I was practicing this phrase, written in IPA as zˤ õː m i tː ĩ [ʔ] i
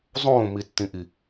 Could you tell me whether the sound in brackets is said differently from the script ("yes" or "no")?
no